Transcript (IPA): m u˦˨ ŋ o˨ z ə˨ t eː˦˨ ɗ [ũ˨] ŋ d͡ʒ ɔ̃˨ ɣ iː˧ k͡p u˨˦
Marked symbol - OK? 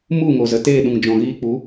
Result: yes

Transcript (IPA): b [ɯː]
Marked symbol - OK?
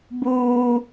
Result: no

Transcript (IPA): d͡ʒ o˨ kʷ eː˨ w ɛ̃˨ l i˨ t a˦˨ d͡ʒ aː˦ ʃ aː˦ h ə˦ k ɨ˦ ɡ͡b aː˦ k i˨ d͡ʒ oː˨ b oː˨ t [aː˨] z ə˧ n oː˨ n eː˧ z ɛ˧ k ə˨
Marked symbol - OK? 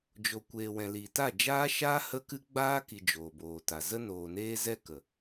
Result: no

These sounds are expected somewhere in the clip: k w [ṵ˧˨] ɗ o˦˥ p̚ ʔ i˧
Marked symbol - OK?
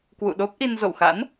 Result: yes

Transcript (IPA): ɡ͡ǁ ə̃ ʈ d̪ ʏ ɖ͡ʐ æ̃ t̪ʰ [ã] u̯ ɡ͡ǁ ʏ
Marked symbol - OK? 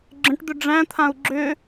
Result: yes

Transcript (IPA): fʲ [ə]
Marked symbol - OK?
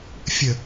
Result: yes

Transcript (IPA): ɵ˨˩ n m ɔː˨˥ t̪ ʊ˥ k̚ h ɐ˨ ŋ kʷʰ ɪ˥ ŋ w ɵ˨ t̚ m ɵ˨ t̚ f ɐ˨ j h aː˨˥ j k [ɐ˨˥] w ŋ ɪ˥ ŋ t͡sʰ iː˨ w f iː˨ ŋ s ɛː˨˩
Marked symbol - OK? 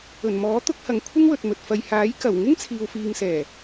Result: no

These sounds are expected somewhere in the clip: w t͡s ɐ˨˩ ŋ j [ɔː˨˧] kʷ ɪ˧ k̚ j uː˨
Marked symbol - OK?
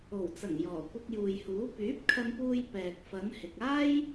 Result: no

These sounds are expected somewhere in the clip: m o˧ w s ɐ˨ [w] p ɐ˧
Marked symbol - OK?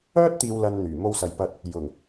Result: no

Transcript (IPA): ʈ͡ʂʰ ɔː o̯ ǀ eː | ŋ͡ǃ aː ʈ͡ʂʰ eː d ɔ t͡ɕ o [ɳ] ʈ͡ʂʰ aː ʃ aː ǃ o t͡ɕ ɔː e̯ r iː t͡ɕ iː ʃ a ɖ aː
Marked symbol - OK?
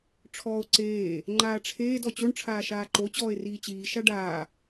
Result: yes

